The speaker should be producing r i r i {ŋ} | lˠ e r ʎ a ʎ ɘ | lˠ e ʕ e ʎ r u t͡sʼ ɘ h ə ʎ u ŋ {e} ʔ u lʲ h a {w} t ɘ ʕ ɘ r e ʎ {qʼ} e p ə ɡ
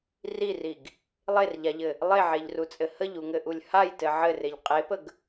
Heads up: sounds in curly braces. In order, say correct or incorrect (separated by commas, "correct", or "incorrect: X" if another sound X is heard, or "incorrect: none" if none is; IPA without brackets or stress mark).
incorrect: ɡ, incorrect: ɘ, incorrect: j, correct